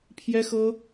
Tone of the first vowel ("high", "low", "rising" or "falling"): high